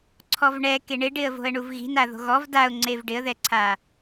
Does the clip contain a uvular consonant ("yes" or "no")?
no